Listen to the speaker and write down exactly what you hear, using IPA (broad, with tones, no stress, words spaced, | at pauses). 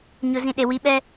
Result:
ɲʊ˨zĩ˨ ɗe˨ wi˨˦ɓɛ˦